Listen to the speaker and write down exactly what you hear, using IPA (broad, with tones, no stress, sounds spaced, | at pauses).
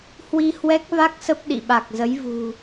h w i˧ h w ɛ˦˥ k̚ v a˦˥ k̚ s ə˦˥ p̚ ɗ ḭ˧˨ ɓ a˨˩ k̚ z ə˨˦ j v ṳ˨˩